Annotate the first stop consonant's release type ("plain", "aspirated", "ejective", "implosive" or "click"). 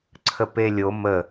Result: click